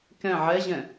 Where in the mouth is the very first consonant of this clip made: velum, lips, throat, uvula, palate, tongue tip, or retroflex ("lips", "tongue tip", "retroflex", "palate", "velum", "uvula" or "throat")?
velum